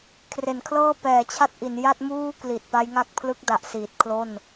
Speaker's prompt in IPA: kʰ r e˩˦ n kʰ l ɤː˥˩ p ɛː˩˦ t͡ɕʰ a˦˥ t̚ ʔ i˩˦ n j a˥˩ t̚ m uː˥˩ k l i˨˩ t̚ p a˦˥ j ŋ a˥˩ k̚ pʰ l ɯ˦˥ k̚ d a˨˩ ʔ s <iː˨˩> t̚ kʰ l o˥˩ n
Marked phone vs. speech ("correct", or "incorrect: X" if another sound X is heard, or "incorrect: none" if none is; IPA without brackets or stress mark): correct